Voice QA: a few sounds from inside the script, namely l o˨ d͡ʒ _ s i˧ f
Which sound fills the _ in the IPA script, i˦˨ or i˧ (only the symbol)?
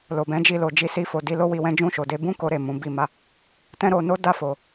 i˧